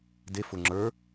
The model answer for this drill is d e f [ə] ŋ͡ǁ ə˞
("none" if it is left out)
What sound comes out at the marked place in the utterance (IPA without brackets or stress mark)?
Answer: ʊ